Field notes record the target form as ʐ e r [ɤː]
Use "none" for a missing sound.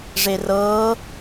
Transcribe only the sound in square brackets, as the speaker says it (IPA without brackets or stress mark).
ɤː